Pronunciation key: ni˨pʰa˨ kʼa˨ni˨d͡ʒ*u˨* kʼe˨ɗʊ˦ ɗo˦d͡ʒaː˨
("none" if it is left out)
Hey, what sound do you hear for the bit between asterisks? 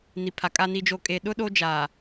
o˨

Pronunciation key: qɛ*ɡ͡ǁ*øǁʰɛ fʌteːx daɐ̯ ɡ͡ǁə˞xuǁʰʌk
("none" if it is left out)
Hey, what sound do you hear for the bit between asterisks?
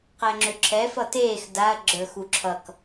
ŋ͡ǁ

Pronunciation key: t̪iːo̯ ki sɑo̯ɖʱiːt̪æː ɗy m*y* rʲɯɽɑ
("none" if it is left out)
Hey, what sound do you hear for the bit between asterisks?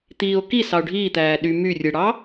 y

